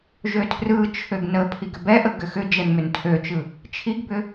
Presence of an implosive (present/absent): absent